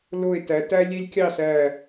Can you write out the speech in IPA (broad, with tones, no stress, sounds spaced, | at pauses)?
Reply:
l o˧˩ e̯ t æ˩˧ t æ˦ lʲ e˦ lʲ kʲ ɑ˥˨ s æ˧˩